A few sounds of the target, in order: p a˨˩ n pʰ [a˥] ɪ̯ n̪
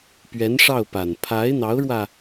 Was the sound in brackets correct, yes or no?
no